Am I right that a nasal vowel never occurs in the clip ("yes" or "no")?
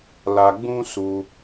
no